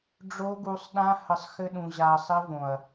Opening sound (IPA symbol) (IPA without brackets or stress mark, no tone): ɖ͡ʐ